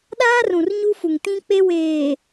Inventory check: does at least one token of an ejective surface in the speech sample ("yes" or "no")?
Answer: no